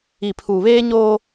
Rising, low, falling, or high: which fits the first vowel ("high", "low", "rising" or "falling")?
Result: low